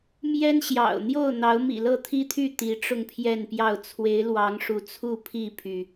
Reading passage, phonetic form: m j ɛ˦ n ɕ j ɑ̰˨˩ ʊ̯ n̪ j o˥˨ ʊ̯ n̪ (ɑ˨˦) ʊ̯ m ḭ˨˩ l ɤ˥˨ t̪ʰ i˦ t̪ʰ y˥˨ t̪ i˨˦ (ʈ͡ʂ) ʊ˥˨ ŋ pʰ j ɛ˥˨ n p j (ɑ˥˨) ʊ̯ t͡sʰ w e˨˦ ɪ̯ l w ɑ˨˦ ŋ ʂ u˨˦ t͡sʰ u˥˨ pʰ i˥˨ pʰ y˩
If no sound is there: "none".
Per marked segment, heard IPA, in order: ɑ˨˦, ʈ͡ʂ, ɑ˥˨

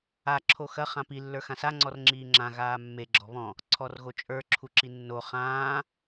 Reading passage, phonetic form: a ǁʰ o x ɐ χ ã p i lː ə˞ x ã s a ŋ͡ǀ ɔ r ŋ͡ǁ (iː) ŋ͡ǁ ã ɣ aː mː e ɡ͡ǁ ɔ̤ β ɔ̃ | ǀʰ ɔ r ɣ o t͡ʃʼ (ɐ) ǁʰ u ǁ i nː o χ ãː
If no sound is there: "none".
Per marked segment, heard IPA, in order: iː, ə˞

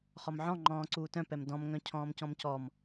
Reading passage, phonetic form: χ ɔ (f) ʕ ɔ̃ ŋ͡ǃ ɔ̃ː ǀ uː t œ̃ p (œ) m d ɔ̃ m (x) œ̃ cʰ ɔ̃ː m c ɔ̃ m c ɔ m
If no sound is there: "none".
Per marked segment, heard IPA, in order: m, ɛ, ŋ

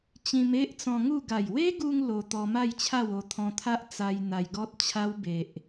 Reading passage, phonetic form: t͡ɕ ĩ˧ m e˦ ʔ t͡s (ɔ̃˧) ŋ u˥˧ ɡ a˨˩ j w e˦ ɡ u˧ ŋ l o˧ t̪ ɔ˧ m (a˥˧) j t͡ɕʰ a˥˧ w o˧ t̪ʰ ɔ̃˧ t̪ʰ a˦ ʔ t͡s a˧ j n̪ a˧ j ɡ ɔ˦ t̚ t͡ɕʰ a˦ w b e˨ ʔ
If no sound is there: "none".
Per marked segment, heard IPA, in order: ɔ̃˧, a˥˧

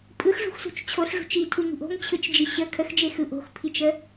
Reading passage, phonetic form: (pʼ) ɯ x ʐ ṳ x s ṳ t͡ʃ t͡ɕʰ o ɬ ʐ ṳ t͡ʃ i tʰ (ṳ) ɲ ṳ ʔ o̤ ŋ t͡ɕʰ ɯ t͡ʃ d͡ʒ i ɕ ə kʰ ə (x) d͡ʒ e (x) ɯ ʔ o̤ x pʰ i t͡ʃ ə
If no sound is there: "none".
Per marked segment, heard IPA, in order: pʼ, u, x, x

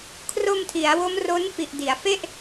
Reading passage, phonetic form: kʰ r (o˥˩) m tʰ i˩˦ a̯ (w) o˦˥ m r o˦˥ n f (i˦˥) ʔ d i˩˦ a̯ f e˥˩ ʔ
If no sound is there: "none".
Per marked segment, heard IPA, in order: o˧, w, i˨˩

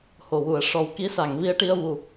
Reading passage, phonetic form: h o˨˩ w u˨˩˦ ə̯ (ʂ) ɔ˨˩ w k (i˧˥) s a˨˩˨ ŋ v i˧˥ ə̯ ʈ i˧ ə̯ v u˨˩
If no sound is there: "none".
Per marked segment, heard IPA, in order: ʂ, i˧˥

